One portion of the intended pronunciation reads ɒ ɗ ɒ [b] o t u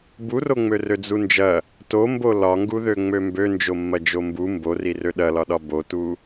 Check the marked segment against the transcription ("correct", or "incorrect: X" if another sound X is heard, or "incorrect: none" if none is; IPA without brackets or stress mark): correct